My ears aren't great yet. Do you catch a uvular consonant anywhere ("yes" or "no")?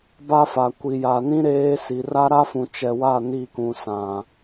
no